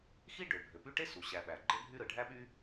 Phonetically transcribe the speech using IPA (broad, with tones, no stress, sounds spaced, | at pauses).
x i˥ ɖ ø˩ bʱ ø˩ p y˦ ʈ e˥ s u˩ ɕ æ˨ ɓ æ˩ ɡ͡ǃ e˦ bʱ y˦ ɾ ɯ˩ ɖʱ æ˦ ɓ y˦